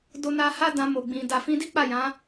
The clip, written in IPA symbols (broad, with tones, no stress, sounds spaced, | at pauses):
d o˧ n a˧ h a˦ d ã˧ m o˨ ɡ͡b ĩ˨ d a˨ f ĩ˧ d i˦ k͡p a˦˨ j ã˨˦